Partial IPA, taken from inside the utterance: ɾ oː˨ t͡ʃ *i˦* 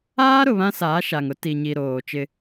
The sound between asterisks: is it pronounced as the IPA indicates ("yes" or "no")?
no